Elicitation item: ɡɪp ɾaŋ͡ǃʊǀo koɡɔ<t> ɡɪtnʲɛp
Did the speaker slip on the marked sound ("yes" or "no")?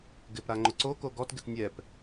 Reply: no